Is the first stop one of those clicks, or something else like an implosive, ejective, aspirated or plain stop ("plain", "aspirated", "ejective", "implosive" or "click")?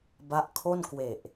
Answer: plain